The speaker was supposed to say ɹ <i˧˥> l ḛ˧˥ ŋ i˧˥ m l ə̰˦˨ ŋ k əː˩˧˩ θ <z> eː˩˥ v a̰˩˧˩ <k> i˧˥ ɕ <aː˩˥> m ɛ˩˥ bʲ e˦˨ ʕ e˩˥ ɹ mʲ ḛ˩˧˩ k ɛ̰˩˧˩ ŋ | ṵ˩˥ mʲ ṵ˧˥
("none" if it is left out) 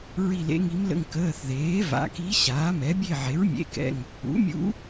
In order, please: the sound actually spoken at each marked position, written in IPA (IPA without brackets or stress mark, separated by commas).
i˦˨, ð, k, aː˩˥